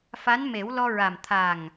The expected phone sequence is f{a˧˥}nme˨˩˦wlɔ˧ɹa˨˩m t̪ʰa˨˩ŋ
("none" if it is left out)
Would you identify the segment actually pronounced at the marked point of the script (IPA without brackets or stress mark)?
a˧˥